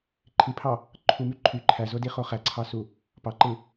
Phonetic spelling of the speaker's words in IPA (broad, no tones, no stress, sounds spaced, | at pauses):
ǃʰ i pʰ ɑ | ǃʰ u m y ǃʰ y ǃʰ æ z o d i χ o χ æ ǀʰ ɑ s u | p ɑ ǃ ɯ